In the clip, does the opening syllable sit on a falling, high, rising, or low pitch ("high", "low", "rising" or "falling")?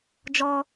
high